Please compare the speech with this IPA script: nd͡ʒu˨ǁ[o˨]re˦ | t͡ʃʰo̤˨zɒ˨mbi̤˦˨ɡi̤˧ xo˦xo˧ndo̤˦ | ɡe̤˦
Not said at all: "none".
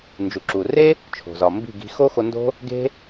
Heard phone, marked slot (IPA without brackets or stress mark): u˨